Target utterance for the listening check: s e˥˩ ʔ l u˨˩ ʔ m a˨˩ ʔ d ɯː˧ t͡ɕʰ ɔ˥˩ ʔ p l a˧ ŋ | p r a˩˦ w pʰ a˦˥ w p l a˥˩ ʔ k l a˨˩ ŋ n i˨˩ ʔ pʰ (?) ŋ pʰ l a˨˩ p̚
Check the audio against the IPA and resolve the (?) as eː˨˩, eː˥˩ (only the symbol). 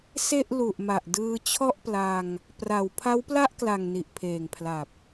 eː˨˩